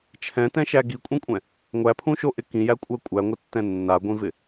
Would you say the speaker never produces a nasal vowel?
no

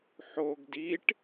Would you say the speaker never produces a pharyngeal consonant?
no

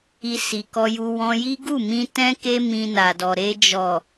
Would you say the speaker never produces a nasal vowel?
no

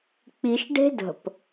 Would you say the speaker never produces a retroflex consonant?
no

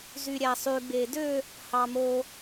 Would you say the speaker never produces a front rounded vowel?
no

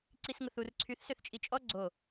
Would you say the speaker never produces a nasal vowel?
yes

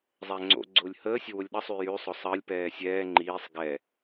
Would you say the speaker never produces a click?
no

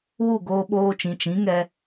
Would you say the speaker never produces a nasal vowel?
no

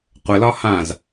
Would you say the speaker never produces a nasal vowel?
no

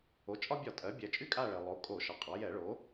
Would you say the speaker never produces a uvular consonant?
no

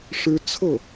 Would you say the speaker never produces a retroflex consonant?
no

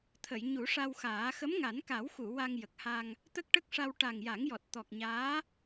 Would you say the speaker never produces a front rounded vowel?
yes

